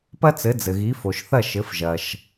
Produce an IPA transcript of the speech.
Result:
p ɐ˥ t͡s ɘ˩˥ d͡z ɘ˩ ɣ i˩˥ f o˩ ʃ θ ɐ˥˩ ʃ ɘ˩˥ f ʒ ɐ˩ ʃ

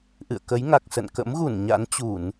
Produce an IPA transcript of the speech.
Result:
ʔ ɨ̰˧˨ ə̯ k ə˨˦ j ŋ a˨˩ k̚ s ə̰˧˨ n k ə̰˧˥ m ɣ u˧˩ n ɲ a̰˧˥ n t͡ɕ u˧˩˨ n

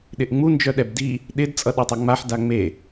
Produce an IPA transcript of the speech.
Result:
ɗ ɪ ʔ ŋ͡m u n d͡ʒ œ ɗ ɛ b d i | ɗ ɪ d t͡sʼ ʌ ɗ e tˤ œ ŋ͡m a ħ d a ŋ͡m e

